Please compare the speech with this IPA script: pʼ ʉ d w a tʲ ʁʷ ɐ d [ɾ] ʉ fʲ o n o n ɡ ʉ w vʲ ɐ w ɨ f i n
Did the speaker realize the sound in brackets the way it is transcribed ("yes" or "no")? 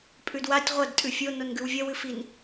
no